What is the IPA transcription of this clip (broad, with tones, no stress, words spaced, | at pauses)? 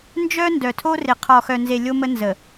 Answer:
nd͡ʒœ˦ ndœ˨tʰo˦rɪ˨ qʰɔ˨xœ˨nze˨ lʲo˦mə˦ nzə˨